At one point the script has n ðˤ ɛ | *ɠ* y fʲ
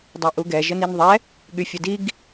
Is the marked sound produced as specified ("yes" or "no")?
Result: yes